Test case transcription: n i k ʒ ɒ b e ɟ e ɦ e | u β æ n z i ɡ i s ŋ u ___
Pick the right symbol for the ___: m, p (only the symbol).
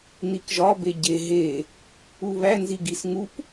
p